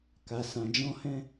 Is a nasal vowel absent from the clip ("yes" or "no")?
no